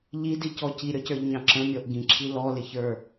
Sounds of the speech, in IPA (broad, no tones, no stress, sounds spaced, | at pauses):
ʎ i d i c ɔ c i ɾʲ ɔ c ə˞ ʎ ɲ ɑ̃ ǁ ə̃ mʲ ɔ ʔ ɡ ĩ ǁʰ i l ɔ l ɪ ç ə˞